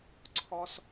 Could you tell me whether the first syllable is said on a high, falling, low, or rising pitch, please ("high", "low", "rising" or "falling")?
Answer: high